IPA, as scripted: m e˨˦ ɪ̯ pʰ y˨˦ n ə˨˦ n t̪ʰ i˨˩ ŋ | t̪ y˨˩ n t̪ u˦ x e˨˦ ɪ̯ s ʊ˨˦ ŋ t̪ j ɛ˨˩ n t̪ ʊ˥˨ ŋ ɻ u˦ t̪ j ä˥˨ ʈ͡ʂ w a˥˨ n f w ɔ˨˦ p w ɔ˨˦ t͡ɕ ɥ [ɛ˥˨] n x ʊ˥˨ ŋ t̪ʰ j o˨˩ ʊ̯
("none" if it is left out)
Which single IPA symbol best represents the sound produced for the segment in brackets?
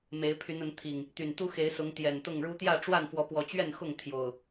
ɛ˥˨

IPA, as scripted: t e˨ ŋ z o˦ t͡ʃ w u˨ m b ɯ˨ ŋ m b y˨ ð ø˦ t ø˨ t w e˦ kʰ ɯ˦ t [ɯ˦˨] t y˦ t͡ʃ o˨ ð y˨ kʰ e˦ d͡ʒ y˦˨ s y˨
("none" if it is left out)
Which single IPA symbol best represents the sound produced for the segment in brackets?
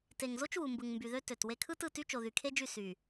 ɯ˦˨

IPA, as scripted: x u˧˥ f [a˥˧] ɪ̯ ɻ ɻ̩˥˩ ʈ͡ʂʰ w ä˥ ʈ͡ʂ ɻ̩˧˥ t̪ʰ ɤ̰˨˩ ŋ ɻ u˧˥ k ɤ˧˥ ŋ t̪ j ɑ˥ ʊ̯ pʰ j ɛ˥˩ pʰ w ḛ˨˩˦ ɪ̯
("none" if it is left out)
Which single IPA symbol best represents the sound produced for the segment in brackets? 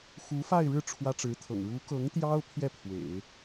a˥˧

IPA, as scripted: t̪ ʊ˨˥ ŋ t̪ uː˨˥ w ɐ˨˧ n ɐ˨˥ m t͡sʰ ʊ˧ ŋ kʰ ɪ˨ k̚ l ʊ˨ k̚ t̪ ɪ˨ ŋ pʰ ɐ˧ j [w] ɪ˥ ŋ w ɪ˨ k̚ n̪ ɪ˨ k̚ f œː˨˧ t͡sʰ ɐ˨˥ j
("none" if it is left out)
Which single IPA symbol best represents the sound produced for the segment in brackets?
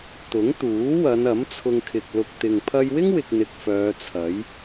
w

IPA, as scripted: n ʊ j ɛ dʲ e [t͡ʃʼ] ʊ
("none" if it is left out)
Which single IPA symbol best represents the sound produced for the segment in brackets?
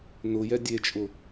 t͡ʃʼ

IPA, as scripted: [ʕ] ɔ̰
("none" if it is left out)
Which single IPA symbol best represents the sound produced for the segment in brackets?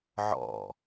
ʕ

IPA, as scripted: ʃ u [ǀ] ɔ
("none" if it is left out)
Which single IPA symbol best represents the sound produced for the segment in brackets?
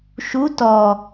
t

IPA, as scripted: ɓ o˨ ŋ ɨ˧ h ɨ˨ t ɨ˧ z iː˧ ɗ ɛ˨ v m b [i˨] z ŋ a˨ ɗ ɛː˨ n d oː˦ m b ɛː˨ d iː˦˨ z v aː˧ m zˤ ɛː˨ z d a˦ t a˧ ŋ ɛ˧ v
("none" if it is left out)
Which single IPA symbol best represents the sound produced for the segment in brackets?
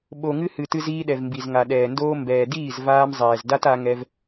i˨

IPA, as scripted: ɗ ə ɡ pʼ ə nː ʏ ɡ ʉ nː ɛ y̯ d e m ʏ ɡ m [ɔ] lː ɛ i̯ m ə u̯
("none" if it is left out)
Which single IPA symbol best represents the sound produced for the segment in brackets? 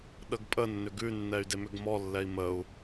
ɔ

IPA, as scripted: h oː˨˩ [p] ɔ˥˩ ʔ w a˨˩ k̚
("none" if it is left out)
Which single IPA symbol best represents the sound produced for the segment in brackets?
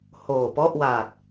p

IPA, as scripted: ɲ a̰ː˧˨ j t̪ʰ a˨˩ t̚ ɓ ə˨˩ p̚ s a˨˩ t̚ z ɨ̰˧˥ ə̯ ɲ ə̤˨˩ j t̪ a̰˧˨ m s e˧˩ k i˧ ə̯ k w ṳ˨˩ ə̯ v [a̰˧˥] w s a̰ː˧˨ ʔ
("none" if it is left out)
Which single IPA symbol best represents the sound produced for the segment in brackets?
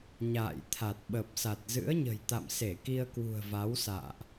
a˨˦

